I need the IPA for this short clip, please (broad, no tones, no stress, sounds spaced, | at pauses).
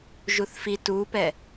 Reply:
ʒ u θ f i t u p ɛ